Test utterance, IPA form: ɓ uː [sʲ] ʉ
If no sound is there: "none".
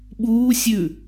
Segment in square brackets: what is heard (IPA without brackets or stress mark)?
sʲ